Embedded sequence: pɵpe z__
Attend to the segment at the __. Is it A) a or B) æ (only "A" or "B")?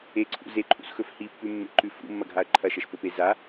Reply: A